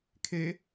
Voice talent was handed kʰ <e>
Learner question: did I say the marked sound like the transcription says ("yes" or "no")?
yes